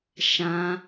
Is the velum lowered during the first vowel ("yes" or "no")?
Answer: yes